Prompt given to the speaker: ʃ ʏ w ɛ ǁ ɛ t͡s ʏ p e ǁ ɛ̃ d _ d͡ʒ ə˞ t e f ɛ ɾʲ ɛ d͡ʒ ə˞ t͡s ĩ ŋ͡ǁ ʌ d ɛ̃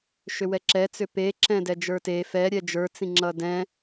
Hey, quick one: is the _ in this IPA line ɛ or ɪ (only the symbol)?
ɛ